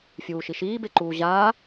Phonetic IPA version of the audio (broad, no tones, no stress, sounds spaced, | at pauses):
fʲ uː ʃ i ʃ iː b e ǃ uː ʑ aː